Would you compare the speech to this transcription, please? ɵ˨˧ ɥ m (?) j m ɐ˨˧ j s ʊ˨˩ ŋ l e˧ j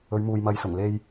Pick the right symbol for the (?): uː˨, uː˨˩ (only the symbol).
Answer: uː˨